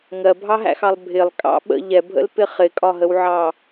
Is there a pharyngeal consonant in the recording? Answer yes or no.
yes